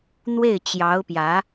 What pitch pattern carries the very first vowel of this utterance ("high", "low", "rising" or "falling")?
falling